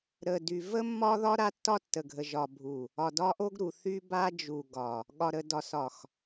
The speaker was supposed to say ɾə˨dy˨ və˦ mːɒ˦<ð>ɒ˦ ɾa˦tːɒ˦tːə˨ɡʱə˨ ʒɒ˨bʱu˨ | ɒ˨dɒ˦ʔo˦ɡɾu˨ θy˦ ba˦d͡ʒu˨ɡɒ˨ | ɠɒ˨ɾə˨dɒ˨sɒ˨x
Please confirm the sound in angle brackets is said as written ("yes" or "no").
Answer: yes